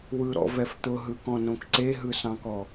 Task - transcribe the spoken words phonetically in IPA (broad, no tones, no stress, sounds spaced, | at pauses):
w ɯ ɾ ɔ̰ v ɛ f t̪ ʊ ɦ ɯ k ɔ̃ n õ k ǀ e ɦ ɯ s ɑ̃ k ɔ